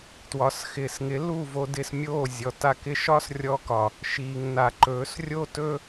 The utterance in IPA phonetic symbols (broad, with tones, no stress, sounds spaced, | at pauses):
t w ɒ˨ s x ɪː˨ s ŋ ɪ˨˦ l u˦˨ v o˧ d ɪː˧ s mʲ oː˦˨ zʲ ɔ˨ t a˦ k ɪ˦ ʃ ɒ˦ s rʲ ɔ˧ k ɒ˨ | ʃ iː˨ ŋ n a˨ ǃ ɵː˨˦ s rʲ o˦ t ɵ˦